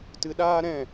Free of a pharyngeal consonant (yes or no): yes